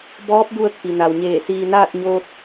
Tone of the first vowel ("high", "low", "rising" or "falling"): rising